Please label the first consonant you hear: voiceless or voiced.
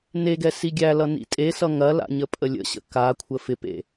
voiced